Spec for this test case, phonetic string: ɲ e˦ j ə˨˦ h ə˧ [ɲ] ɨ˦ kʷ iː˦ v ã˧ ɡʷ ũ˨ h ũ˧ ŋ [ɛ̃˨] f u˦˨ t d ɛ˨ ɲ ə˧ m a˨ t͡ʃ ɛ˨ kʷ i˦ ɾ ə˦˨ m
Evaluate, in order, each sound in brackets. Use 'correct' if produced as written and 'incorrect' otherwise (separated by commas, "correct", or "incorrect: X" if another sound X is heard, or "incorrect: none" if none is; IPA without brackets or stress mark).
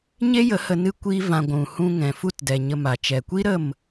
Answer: incorrect: n, correct